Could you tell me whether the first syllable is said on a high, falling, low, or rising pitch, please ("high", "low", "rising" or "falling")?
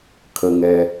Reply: low